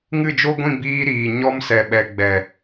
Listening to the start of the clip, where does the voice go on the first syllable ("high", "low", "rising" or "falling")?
falling